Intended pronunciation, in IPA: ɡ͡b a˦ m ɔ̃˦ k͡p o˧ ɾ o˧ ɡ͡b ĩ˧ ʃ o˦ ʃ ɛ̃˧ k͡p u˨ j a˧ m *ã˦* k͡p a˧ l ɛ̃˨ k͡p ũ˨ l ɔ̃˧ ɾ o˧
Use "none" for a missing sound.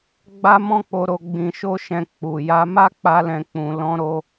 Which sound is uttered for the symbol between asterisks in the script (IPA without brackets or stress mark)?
a˦